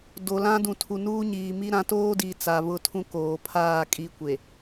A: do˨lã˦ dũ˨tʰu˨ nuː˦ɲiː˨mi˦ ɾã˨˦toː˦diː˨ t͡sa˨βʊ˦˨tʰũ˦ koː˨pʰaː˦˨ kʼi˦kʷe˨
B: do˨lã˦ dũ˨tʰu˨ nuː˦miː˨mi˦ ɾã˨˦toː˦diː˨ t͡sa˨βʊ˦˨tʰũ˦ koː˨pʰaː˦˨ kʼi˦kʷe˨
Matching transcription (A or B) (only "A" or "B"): A